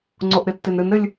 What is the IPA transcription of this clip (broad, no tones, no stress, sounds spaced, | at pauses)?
ŋ͡ǀ o ʔ ɾ ɪ tː e n ɾ ɨ n ɾ ɘ lʲ